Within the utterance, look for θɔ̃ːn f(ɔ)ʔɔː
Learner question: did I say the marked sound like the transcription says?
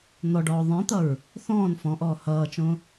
no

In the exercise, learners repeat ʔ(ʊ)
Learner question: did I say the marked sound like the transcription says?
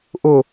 yes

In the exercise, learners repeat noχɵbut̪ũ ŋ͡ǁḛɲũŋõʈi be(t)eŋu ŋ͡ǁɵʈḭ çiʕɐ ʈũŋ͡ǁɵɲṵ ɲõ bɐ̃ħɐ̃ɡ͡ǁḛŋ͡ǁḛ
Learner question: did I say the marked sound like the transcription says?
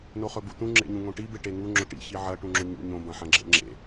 no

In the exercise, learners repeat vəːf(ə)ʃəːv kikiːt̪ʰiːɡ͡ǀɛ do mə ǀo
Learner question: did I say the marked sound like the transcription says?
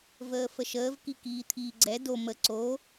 yes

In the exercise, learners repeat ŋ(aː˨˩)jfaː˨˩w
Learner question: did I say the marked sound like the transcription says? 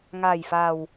yes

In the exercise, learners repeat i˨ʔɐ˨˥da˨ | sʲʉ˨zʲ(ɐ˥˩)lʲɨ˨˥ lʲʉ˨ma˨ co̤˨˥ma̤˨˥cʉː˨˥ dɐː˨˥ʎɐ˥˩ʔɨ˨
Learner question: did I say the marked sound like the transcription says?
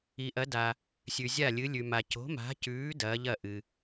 no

